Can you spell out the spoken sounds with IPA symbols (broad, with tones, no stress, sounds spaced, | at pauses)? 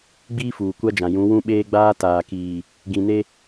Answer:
ɡ͡b iː˦ f uː˨ kʷ a˦ d͡ʒ ã˨ j ũ˨˦ w ũ˦ ɓ eː˦ ɡ͡b aː˦ t aː˨ k iː˨ | ɡ ĩ˨ n e˦